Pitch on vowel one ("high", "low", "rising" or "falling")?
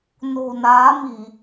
low